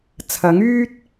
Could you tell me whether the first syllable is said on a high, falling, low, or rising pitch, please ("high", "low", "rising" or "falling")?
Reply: rising